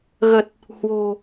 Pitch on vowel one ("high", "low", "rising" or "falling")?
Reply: low